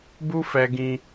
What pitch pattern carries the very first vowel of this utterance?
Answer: high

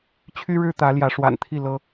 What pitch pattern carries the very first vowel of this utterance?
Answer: high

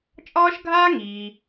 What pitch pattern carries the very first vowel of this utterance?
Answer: high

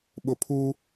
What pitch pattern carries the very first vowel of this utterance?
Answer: low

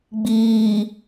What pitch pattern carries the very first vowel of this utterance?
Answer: low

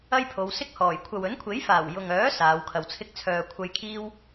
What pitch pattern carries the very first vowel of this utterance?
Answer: high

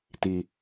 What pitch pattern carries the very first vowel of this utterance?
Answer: low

